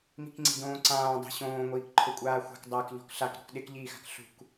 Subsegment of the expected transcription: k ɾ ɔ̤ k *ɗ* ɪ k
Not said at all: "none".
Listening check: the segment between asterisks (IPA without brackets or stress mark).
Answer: ɗ